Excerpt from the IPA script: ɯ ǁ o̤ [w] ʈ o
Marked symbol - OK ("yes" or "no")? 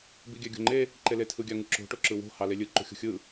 no